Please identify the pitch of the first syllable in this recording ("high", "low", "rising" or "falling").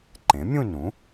rising